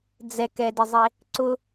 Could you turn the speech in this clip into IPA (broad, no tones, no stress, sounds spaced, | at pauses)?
d͡z ɛ k ɛ d ɪ zˤ e | ǀ ʊ